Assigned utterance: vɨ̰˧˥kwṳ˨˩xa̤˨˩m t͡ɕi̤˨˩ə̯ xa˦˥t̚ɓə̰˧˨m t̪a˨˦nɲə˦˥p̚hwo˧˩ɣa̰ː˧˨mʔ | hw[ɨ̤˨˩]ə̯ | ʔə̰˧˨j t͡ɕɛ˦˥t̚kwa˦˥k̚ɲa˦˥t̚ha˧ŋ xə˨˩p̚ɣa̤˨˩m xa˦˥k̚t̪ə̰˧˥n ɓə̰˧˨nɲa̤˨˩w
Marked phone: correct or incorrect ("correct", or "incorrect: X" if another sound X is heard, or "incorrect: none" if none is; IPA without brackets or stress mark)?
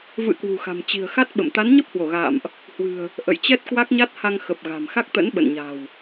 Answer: correct